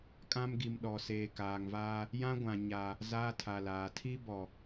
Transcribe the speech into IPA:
kʼã˦mɡi˨m ɗɔ˨seː˨kaː˨ŋvaː˦ | jã˦ɡʷã˨ ɲa˦ | zaː˦tʰa˨laː˨ tʰi˦bɔ˨

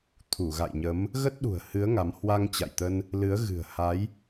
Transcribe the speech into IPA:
t̪ʰu˧˩ɣa̰˧˨jɲə˨˦m | ɣə˦˥t̚ɗṳ˨˩ə̯ hɨ˨˦ə̯ ŋa˨˦m hwa˧ŋt͡ɕa̰˧˨jt̪ə˧n | lɨ˨˦ə̯ ɣɨ̤˨˩ə̯ ha˨˦j

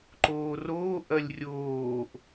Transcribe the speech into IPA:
ǃoːroː ʔɐlʲrʲoːʔ

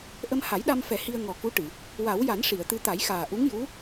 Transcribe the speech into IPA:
ʔə˧mha˨˩˦jɗa˧mfɛ˨˩˦ hi˧ə̯ ŋɔ˨˩ku˧˥ʈɨ˨˩˨ | wa˨˩˦wja˨˩˦n ʂi˨˩˨ə̯t̪ɨ˧ t̪a˨˩˦jxaː˨˩ ʔu˧˥ŋju˧˥

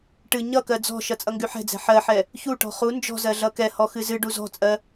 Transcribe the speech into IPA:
ʈɨ ɲʌkɜ d͡zɔ̤ʃʌ t͡sʼʌŋɡyħɛ̤d͡zɛ̤ ħɜħɛ | çuʈɔ̤ χu nd͡ʒɔ̤zɜ ɮʌkɛhɔ xɨzɨɖu zɔ̤t͡sʼɜ

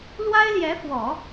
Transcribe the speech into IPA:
lwa˥ɪ̯ljɛ˧˥fwɔ˨˩˦

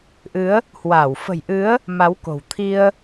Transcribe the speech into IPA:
ʔɨ˨˦ə̯ | hwaː˧˩w fə̤˨˩jʔɨ˨˦ə̯ | ma˨˦wko̤˨˩wt̪ʰi˧ə̯

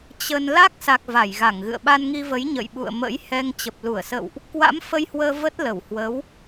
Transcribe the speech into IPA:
t͡ɕə˧n la˦˥k̚sa˨˩k̚ va˧˩jɣa˧˩ŋɣɨ̰˧˨ə̯ ɓa˧nŋi˧və˨˦j ɲə̰˧˨jɓṵ˧˨ə̯ mə̰˧˥jhɛ˧ŋ t͡ɕə˨˩p̚lu˧˩ə̯sə̰˧˨wʔ | kwa̰˧˥m fə˧jhwəː˧ və˦˥t̚ lə˧˩whwə˨˦w

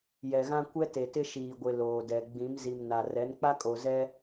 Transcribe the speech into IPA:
jɛ˨ɣã˦ kʷɛ˦te˨tɪ˦ ʃiː˨ɡʷɪ˨ loː˨dɛ˨ ɡ͡bĩ˨˦mzi˨mna˨ rɛ˨˦nk͡pa˦kʼo˨ zɛ˦

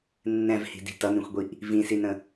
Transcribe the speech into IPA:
nːɛ̃vhi̤di̤ tʌnĩxʷɡʷiʔ | vĩsinə̃

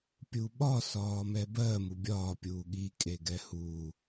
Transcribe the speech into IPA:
pʲuɓɒ sɒːmɛbɜ mubʲɒː pʲuːɠi kʼeɡɛhuː

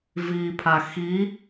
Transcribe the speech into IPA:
vipʰa xi

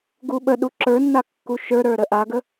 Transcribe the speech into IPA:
ɡuɓəɗu ǁə˞nːa kːuʃə˞ɾə˞ ɾəʔaɡə

